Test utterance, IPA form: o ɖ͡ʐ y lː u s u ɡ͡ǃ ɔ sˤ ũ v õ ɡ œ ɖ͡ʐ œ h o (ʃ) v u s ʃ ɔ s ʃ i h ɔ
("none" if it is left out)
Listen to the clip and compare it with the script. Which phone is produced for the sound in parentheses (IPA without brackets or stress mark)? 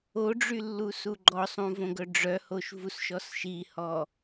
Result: ʃ